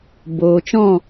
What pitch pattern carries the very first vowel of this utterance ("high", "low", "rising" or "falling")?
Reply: low